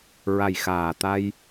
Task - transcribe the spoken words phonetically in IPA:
ɹ a˨˩ j x aː˨˩ t̪ a˧ j

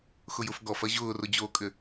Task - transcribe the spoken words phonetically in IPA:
x ʊ j ʊ f ɡ ɔ f ɐ ʑ ʊː r ʊ d͡ʑ oː kʼ ʏ

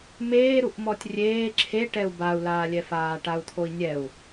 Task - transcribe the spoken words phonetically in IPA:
m eː ɾ u ʔ m ɔ tʲ rʲ eː ǁʰ e ʈ ɛ u̯ b a u̯ l aː lʲ ɛ f aː ʈ a u̯ t̪ʰ o i̯ nʲ ɛ u̯

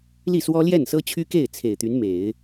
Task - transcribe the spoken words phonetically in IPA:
l i˥˩ s w ɔ˥ l j ɛ˥˩ n s ɤ˥ t͡ɕʰ y˥ k e˥˩ ɪ̯ t͡sʰ e˨˩ ɪ̯ t̪ y˧˥ n m e˨˩˦ ɪ̯

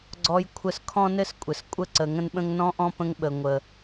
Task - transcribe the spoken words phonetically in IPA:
ɡ͡ǀ ɔ˦ j kʷʰ ə˦ s kʰ ɔ̃˦ n ɘ˦ s kʷʼ ɘ˨ s kʷʼ ə˦˨ ǀ ə˨ ŋ ə̃˦ n ɓ ə̃˦ ŋ n ɔ̃˦ ʔ ɔ̃˦ p ə̃˧ ŋ ɓ ə˨ ŋʷ ə˨

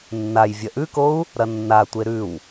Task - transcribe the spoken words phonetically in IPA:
nː a j vʲ ɐ ʔ ʉ k o u̯ | ɾ ɐ nː a tʷ e ɾ ʉ w

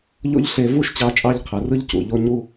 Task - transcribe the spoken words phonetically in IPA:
ʎ o̰˥ ʎ ɬ e˧ v u˥ ʃ t͡ɕ ɑ˧ t͡ʃʼ ɑ˥ ʎ qʰ ɯ˩ r ɯ˥ ʎ c ṵ˩ ʎ o˥ ɲ u˥

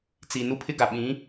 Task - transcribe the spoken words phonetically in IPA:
t͡s i˨ n u˦ pʰ ɪ˦ ɡ a˨ ɓ ĩ˨˦

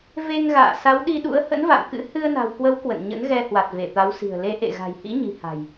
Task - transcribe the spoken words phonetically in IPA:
v e˧ ŋ ɣ a̰ː˧˨ s a˨˦ w ɗ i˧ ɗ ṵ˧˥ ə̯ h ə̰˧˥ n v a̰˧˨ m k ɨ̰˧˥ h ɨ˧ ə̯ n a̤˨˩ w k w ə˨˦ w k w ə̰˧˨ n ɲ ə̰˧˥ n ɣ ɛ˧ h w a˨˩ t̚ v e˧˩ t̪ a˨˦ w s i̤˨˩ ə̯ l e˨˦ ʔ ḛ˧˨ ɣ a̤˨˩ j h ḭ˧˥ ɲ i̤˨˩ h a̤˨˩ j

